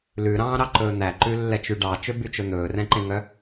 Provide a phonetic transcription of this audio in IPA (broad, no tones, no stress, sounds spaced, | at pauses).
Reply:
l ʉ ɾ ɑ̃ː ɾ ɑ ǃ ɵː n̪ æ ǃ ʉ lː ɛ t͡ʃ y ɖ ɑ t͡ʃ ø b y t͡ʃ ɵ n̪ ɵː r ɛ̃ ǃ ẽ ŋ œ